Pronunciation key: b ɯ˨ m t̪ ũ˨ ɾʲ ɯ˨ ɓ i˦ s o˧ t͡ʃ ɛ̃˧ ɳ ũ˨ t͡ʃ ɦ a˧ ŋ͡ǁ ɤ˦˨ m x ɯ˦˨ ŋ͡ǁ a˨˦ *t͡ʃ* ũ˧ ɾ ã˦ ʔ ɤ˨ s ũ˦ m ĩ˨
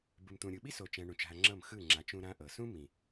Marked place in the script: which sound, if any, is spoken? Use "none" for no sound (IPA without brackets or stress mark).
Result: t͡ʃ